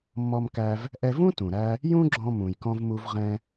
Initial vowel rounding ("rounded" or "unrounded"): rounded